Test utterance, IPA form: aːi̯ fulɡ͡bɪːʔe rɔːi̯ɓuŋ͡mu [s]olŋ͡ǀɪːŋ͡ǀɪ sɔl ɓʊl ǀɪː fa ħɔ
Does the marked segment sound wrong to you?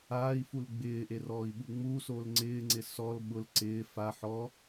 no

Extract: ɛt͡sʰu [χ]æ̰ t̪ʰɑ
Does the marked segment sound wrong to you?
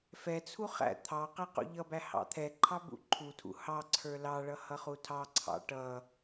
no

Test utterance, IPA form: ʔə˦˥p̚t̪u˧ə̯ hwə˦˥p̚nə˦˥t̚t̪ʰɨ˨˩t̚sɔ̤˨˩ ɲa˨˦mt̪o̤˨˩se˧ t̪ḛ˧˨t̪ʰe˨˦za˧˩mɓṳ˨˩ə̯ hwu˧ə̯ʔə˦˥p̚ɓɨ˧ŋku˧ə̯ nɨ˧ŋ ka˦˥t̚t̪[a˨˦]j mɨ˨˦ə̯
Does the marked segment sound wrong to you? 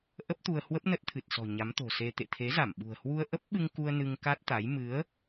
no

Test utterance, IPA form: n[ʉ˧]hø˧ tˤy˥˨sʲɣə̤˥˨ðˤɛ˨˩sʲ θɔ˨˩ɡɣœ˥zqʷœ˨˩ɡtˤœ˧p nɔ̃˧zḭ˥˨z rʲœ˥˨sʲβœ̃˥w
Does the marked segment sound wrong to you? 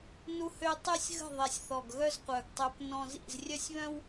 yes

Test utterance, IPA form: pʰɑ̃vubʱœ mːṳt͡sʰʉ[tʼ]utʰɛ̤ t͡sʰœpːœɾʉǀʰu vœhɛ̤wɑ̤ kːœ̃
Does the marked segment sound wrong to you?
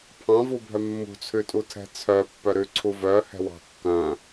no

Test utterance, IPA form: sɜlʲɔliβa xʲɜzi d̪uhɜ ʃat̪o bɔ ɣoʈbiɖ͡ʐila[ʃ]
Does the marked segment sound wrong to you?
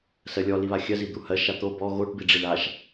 no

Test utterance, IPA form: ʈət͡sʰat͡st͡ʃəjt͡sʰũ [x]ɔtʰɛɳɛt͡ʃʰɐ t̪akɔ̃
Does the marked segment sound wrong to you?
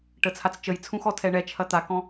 no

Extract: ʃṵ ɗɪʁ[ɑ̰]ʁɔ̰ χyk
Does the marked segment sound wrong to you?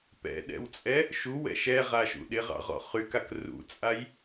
no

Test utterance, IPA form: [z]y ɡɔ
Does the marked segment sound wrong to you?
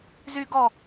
no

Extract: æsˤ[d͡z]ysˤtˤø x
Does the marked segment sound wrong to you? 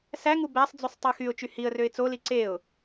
no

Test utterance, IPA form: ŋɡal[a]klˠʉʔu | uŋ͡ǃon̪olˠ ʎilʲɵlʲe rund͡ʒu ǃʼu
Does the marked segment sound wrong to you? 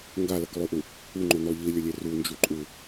yes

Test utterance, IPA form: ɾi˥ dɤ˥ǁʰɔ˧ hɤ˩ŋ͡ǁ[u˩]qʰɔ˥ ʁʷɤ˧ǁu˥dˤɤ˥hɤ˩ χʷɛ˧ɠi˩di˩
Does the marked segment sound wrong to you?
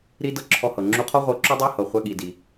yes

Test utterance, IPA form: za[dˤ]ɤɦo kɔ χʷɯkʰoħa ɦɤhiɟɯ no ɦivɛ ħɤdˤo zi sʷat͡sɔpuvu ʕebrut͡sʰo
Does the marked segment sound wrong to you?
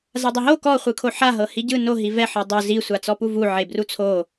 no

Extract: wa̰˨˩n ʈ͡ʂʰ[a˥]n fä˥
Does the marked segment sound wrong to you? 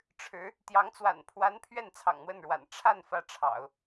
yes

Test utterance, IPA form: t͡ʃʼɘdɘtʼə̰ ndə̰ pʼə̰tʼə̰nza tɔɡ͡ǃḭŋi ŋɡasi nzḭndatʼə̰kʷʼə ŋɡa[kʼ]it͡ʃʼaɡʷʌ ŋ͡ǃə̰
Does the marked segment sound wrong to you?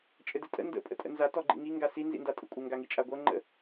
yes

